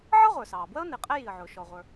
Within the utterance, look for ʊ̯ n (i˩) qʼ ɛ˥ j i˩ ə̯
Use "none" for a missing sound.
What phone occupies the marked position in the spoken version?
i˩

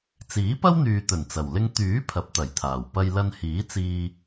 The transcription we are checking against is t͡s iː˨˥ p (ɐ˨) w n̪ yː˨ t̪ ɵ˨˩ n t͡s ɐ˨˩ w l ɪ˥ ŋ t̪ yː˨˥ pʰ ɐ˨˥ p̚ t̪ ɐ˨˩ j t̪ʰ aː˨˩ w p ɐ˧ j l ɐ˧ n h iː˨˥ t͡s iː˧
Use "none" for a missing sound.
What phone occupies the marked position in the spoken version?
ɐ˥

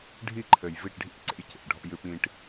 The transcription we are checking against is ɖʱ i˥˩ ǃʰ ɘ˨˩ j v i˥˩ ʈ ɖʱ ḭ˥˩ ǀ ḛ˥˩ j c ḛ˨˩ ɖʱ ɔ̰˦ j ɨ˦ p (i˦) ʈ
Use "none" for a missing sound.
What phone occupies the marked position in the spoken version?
ĩ˦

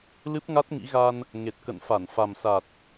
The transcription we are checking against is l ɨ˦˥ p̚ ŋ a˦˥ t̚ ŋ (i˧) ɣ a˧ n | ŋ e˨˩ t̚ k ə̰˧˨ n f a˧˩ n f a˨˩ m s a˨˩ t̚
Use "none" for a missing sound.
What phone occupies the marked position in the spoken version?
ḭ˧˥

